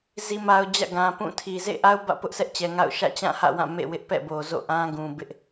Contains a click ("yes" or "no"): no